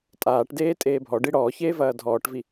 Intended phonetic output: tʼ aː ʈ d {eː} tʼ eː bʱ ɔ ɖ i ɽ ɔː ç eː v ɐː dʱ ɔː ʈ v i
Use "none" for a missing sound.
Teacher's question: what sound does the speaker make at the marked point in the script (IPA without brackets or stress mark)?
eː